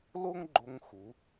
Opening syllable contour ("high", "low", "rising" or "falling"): high